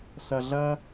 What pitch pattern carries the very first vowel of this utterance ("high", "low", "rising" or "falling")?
low